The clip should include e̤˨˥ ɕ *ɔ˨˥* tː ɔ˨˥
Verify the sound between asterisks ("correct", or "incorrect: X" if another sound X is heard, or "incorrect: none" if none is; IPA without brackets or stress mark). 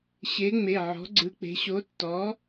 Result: incorrect: o˨˥